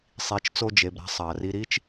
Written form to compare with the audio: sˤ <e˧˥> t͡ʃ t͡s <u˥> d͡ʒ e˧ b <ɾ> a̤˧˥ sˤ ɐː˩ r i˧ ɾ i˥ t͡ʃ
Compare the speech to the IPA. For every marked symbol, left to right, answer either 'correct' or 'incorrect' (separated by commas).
incorrect, incorrect, correct